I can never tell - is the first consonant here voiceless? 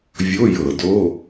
no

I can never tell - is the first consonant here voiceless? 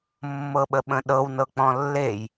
no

